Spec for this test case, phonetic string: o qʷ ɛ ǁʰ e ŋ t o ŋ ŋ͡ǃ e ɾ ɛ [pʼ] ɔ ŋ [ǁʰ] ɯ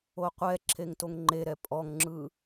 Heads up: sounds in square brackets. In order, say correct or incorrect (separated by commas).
correct, incorrect